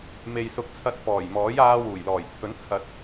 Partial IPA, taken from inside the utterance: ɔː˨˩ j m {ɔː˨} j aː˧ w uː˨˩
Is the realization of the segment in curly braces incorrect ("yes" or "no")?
yes